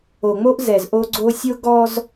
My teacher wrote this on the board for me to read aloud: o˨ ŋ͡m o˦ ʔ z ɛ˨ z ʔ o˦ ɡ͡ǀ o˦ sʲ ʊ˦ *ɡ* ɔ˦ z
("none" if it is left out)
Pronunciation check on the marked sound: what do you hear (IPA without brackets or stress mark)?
ɡ